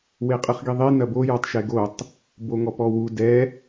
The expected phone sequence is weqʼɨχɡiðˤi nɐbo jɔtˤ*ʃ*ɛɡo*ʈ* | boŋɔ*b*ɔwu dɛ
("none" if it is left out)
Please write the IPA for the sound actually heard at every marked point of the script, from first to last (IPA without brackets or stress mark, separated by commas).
ʃ, tˤ, p